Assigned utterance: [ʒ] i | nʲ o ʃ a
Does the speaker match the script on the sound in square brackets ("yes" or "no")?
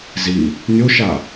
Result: no